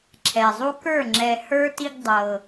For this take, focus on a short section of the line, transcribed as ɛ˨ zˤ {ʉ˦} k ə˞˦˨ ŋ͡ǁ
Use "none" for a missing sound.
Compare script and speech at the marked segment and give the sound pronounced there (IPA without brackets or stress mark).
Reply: u˦